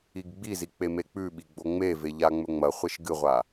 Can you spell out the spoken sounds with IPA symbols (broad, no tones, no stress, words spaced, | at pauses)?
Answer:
iɡɡ͡bizi k͡pemek͡pʉɓi ɡ͡boŋ͡meve ʎaŋ͡mɵŋ͡mɐχʷeʃ ɡɨʁʷa